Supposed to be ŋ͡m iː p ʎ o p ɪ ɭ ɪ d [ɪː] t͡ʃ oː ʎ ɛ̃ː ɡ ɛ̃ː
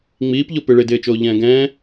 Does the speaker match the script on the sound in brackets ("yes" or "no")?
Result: yes